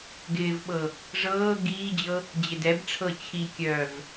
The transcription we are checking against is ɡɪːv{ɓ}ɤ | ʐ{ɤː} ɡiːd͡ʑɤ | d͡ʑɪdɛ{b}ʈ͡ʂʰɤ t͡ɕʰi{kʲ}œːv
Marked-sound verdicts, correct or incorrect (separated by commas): correct, correct, correct, correct